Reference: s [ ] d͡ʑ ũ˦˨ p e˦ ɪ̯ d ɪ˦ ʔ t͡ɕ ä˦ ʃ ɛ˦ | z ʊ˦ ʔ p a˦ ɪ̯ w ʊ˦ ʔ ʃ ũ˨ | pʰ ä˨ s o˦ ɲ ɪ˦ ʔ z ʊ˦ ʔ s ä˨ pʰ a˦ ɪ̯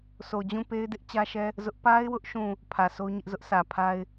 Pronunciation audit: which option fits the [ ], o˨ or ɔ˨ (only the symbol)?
o˨